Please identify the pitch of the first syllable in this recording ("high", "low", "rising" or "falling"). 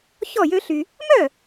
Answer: falling